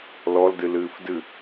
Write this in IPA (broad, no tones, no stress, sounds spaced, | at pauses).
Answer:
l ɔ l d ɨ l ɨː f d ɨ